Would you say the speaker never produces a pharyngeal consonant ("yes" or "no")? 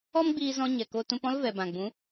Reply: yes